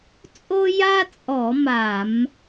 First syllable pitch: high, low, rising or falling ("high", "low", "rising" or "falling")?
high